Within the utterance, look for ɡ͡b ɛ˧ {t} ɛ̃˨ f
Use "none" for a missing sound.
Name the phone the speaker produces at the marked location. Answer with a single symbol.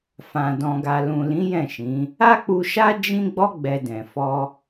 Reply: d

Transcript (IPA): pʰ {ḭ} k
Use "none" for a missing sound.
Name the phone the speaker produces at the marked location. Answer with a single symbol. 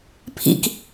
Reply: ḭ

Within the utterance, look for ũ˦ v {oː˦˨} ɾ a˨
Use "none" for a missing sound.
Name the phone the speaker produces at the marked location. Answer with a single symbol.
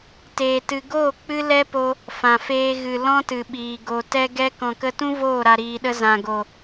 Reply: oː˦˨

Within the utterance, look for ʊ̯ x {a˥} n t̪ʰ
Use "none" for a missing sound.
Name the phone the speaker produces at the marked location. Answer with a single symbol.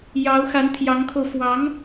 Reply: a˧˥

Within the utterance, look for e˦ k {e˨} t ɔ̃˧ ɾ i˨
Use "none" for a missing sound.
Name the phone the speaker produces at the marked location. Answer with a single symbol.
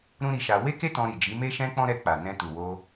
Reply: e˦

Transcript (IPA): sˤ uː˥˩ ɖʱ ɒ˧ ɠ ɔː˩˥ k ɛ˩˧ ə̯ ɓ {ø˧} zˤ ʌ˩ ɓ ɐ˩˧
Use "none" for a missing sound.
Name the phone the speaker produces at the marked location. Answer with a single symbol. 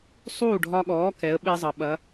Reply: e˧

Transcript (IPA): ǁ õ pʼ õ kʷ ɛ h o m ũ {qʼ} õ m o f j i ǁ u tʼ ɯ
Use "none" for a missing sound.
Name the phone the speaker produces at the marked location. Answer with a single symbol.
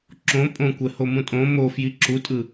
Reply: tʼ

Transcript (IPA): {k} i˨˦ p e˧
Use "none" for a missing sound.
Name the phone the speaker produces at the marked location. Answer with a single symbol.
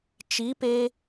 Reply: t͡ʃ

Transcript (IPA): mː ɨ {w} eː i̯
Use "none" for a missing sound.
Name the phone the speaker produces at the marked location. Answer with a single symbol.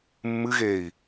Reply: ɣ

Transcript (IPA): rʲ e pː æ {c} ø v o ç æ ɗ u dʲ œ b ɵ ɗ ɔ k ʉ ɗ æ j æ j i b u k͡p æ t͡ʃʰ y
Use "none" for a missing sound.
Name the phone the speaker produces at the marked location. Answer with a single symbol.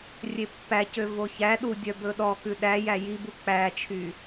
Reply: c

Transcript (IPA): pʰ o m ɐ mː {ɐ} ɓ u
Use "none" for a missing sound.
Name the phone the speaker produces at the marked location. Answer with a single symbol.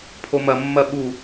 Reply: ɐ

